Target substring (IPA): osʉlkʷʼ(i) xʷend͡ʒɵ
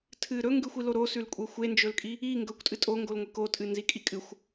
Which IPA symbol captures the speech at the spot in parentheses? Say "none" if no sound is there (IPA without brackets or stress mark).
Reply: e